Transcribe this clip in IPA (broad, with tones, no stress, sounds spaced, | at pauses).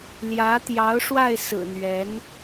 l j ä˧˥ t̪ j ɑ˧˥ ʊ̯ ʂ w a˥˩ ɪ̯ s ɹ̩˨˩ n̪ ɥ ɛ˧˥ n